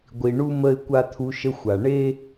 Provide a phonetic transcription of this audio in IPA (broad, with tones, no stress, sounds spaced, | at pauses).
ɡʷ i˨ ɳ u˦ m ə˨ ɪ̯ kʷ a˦ t̪ʰ u˦ ʃ ə˦ xʷ a˨ ɳ e˦